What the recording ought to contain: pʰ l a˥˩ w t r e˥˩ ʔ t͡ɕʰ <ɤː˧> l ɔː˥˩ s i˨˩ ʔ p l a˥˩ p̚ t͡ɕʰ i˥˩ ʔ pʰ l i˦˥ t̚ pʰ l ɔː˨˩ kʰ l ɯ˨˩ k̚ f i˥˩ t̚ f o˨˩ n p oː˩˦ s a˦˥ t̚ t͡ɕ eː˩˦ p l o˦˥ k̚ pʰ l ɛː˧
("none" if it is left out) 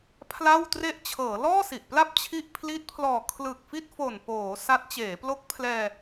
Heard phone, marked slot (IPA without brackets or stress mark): ɤː˩˦